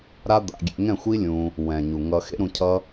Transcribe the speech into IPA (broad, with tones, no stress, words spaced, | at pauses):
ɾa˦d̪a̰˧ ɡʲḛ˧ ŋɛ̃˦˨xʷi˦ lʲũ˧ | wɛ̃˨ɲu˨ ŋʌ˧ xḛ˦ɾũ˧ cʰʌ˦